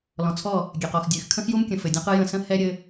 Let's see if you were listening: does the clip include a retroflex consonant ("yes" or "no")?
no